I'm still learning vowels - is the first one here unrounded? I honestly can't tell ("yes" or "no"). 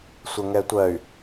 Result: yes